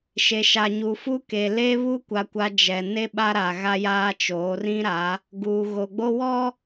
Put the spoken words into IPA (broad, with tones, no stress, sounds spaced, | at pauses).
ʃ e˨ ʃ a˨ ɲ u˨ f u˦ k e˨ l e˦ β u˦ kʷ a˨ kʷ a˨ d͡ʒ ɛ˨ n e˦ ɓ a˦ ɾ a˨ ɣ a˦ j aː˦ t͡ʃ oː˨˦ r ĩ˦ ɾ a˨˦ | ɡ u˨ ɣ o˨ ɡ͡b o˦ w ɔ˦